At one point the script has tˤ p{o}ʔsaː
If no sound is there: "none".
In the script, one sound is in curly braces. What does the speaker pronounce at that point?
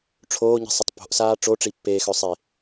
o̤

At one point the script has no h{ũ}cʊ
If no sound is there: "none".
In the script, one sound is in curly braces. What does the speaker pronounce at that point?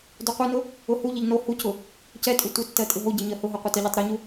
u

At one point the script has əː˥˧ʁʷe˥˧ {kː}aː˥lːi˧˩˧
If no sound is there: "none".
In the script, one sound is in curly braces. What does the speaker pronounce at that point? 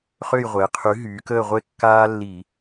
kː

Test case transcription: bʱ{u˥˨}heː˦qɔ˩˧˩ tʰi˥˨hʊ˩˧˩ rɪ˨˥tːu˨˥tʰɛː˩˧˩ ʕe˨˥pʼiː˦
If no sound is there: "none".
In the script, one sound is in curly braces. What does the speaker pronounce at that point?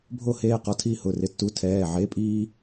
o˥˨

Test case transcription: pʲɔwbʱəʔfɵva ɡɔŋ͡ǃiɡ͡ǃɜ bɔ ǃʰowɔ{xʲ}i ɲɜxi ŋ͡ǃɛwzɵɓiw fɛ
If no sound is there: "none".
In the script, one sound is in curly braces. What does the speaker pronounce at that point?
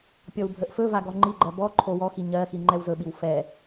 x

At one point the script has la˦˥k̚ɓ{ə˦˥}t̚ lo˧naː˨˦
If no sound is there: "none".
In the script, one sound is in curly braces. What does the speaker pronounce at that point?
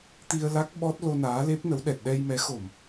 ɔ˦˥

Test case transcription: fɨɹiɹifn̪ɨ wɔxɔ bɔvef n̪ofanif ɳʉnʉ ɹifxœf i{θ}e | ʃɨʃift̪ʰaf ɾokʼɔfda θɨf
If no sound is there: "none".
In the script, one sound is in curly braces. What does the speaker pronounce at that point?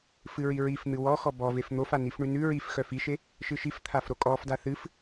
ʃ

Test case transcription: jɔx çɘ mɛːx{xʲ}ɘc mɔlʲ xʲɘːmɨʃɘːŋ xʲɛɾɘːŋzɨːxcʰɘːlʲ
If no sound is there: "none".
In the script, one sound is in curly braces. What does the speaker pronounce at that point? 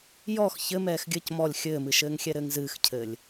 ɡʲ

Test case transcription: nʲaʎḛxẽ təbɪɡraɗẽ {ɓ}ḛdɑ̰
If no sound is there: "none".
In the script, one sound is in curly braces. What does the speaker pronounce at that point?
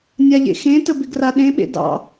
ɓ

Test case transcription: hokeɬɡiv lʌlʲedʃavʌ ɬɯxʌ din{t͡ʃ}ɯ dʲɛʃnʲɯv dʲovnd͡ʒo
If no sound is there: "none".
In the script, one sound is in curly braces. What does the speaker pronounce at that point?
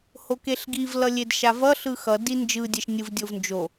d͡ʒ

